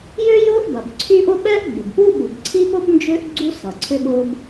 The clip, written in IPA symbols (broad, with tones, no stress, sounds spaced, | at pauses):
j ʏː˥ j ʊː˥ ʔ b ɐ˩ b ǀʰ y˥ ʔ ʊ˥ ɓ ɛ˥ ʔ ɡ͡b ɪ˩ b p u˥ ɓ u˩ b ǀʰ i˥ p ʊ˥ b n d͡ʒ ʏː˥ ʔ ɡ͡ǀ u˥ s ɐː˩ ǀʰ ʏ˥ ɓ ʊː˥ b